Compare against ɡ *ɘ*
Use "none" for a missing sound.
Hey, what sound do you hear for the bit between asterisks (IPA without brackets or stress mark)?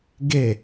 e